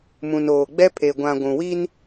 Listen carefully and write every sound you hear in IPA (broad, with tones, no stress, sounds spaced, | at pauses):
m ũ˨ n oː˨ ɡ͡b ɛ˦ pʰ e˨ ɡʷ ã˨ ɡʷ ũ˨ w i˦ n